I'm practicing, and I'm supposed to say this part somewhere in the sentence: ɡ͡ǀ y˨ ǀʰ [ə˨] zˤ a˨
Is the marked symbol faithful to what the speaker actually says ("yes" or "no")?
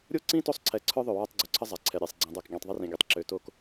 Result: no